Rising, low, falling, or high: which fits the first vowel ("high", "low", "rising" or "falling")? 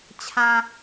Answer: low